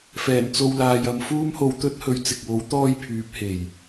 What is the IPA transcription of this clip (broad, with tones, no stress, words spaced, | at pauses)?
fɛː˨˩nt͡so˧wlaː˨jɐ˨m fuː˥mho˧wt̪ɵ˥t̚hɵ˨˧ɥ t͡sɪ˨k̚wo˨˥w t̪ɔː˥jpʰyː˨˥p̚ he˨˩j